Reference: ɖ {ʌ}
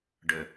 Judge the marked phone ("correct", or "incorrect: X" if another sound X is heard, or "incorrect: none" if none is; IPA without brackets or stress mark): incorrect: ə